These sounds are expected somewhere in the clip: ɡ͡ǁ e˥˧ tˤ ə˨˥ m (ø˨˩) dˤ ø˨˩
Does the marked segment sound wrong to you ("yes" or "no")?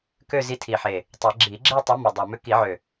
yes